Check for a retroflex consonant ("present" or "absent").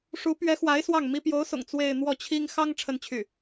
present